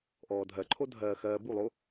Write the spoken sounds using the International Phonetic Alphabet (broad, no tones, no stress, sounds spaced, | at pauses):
ʔ ɔː dʱ ɜ ǃʰ o dʱ ɜː x ɜː b u lˠ o